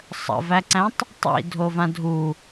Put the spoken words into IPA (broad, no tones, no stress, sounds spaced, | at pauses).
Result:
sˤ ə̰ v æ ǀ æ̃ tˤ | tˤ ḭ dʱ o v ã dʱ u